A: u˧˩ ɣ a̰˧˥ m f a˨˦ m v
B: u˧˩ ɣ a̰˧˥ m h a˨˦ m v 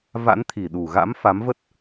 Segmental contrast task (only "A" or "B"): A